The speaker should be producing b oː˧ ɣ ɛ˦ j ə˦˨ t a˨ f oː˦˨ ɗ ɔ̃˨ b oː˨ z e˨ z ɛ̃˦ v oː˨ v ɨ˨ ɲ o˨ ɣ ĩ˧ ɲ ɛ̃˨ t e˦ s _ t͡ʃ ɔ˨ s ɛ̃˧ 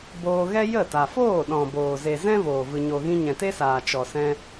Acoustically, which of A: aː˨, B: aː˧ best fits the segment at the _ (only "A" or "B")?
A